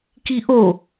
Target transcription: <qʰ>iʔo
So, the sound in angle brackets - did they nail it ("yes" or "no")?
no